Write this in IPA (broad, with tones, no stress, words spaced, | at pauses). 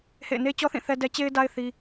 hḛ˦˨ɪ̯ne˦ t͡ɕɔ˦θĩ˦˨ θɛ˦dɛ˦ t͡ɕe˦ɪ̯da˦ɪ̯ θi˦